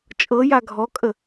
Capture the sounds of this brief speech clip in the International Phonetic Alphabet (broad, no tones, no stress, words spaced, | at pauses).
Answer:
t͡ʃʼɤja ɡʱɔkʼə